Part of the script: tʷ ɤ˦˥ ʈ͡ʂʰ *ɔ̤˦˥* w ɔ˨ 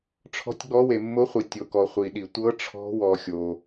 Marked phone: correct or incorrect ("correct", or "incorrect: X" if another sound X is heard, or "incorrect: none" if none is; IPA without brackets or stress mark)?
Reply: correct